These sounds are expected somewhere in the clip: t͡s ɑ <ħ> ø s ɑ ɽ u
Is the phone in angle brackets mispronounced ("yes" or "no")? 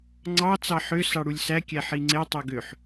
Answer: no